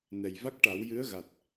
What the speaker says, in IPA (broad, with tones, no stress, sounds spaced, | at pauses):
n ɛ˨˩ j v a˦˥ k̚ ʈ a˨˩˦ w j ɨ˧˥ ə̯ ɣ a˨˩ t̚